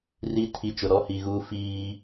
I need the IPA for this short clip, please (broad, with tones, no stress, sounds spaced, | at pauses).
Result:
r i˦ tʰ i˨ t͡ʃ ʊ˨ ɾ ɔ˦ h i˨ ɣ uː˦ f iː˦